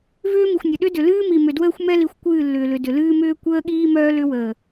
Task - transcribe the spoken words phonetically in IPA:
vʏː˦ mi˨xʷnʲə˨ ɗʏ˦dʏ˨ lɨː˦mi˨mʏ˨ dwəː˦xʷmɛ˦li˨xʷ kʷɨː˦˨lːʏː˨lʏ˨ dʏ˨lɨː˦ mʏː˦kʷəː˦ ɠiː˦mœː˦ lʏ˦wəː˨

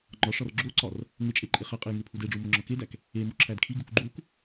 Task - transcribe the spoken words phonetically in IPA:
ŋ͡ǃɒʂɒr ɡ͡ǁoǀɒr | ŋet͡ʃʼe ǃʼeχæqʼej ŋepʰudeɖ͡ʐu moŋ͡ǁɒkedæk | e moǁʰædkʰiɡuk ɡ͡ǃuk

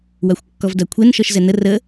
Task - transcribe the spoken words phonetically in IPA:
waxʷkːɔvdakʷʰen ʃɔʃzɛnə rə

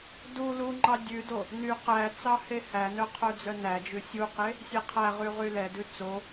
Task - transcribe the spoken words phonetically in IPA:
du luŋ͡ǃɑ dʲʉdo | ny qæt͡sɑ hehænœ qʰœd͡zœnæd͡ʒʉ sʲuqe | sʲeqʰæʁy ʁylɛdʉ t͡so

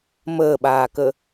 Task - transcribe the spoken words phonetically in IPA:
məːɓaːkə

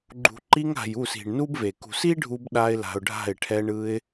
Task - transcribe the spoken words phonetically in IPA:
ɡ͡ǃṳ˨ǃi˧ŋa̤˨j u˦˨si̤˨ɳnu˦bve˨ kṳ˨si˦ɖʱu˧b ɗa˧ɪ̯ la̤˧ʊ̯ɖʱa̤˦˨ɪ̯ ʈʰɛ˧ɳɯ˧ɪ̯

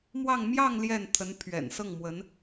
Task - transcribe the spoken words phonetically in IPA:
mwɑ˥˧ŋ mjɑ˥˧ŋ ljɛ˥˩nt̪ʰə˧˥npʰɥɛ̰˨˩n sɤ˥˩ŋmwə˧˥n

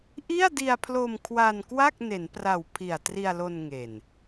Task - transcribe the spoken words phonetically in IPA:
ʔi˥˩a̯di˧a̯pʰlo˧m kʰwa˧nkwa˥˩k̚ ne˩˦npra˨˩wpʰi˨˩a̯ tri˧a̯lo˧nŋe˨˩n

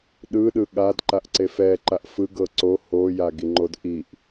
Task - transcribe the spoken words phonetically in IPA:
ɗɯ ɗɯɠad ǃaʔǀefɛ ǃaʔfɯ ɡɤǀo ho jaɡiŋ͡ǃodʔiʔ

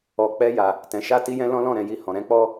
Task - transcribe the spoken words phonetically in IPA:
ɔ˨ k͡pɛ˧ja˨ | tɛ̃˨ʃa˧ti˧jɛ̃˧ lɔ̃˦lɔ̃˦˨ɾɛ̃˨ji˧ hɔ̃˨ɾɛ̃˨˦k͡pɔ˦

